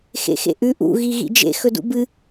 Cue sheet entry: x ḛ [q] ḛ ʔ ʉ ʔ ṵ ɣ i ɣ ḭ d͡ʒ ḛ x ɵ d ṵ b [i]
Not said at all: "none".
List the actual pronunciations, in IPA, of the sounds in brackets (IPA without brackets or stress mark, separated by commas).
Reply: x, ɨ